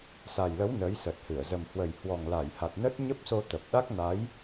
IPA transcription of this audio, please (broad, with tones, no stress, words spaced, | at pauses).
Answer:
sa˨˩jlə˨˦w nə˨˦jsə˨˩t̚hɨ˧˩ə̯ zə˨˩mhwə˨˩j hwɔ˨˩ŋla˧˩j ha˨˩t̚nə˦˥t̚ ɲə˦˥p̚so˧ t̪ə˨˩p̚ ɗa˦˥k̚na˨˦j